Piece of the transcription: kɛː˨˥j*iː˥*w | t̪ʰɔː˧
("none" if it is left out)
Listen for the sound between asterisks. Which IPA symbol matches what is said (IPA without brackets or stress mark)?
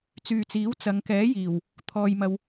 iː˨˩